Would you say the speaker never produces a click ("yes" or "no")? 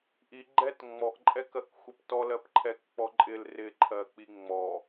no